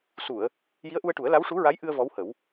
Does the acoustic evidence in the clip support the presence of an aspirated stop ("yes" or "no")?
no